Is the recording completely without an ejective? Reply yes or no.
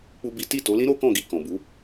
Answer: yes